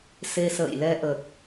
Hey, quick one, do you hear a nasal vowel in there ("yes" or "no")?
no